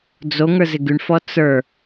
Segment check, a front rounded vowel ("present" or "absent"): present